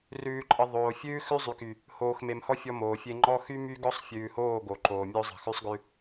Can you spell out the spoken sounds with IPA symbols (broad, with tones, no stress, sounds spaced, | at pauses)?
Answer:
r ʉː˨ ǃʼ ə˨ ðˤ oː˨ fʲ ʉː˦ x ʉ˦ zˤ y˨ k y˨ | h oː˨ x m e˨ m h ɔ˦ fʲ ɔ˦ m oː˨ fʲ e˦ ŋ͡ǃ ɔ˦ x y˦ m y˦ ɡ ɔ˦ sˤ fʲ ʉː˨ h oː˦˨ ɡ o˨ ǃ oː˨ mʲ o˦ zˤ ə̤˨ x ʉ˦ sˤ ɡ ʉ˦